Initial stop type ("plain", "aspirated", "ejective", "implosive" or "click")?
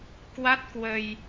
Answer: plain